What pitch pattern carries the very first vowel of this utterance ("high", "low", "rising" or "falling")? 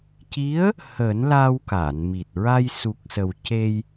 rising